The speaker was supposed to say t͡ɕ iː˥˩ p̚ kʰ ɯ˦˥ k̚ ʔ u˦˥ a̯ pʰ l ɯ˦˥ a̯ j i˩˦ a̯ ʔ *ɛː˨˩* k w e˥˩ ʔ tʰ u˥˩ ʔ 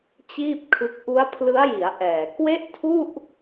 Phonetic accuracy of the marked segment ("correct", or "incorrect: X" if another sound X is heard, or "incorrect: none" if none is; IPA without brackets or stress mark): correct